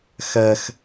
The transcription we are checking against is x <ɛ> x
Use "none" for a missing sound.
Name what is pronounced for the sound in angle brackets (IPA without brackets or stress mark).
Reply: ɜ